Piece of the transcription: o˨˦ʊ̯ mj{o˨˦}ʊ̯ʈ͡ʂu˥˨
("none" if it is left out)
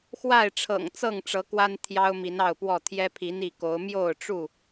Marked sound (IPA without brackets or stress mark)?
o˥˨